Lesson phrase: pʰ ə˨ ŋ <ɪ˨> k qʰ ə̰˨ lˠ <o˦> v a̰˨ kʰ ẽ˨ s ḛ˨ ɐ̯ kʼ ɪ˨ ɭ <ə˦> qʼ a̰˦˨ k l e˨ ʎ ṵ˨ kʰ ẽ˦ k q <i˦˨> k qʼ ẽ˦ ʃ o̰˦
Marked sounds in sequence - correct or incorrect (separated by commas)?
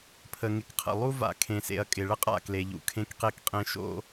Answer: correct, incorrect, correct, incorrect